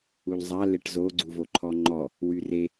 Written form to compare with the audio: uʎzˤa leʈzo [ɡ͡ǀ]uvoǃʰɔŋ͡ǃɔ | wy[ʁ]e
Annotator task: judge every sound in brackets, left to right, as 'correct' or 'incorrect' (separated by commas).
correct, incorrect